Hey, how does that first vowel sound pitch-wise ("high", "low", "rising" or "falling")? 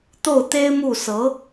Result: falling